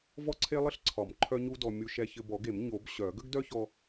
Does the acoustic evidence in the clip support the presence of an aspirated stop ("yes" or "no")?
yes